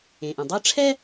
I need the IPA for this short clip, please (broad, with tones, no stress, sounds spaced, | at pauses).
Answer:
ẽ˩ ʔ ɛ̃˩ dˤ ɯ˥ ə̯ ʈ͡ʂʰ ɛ˥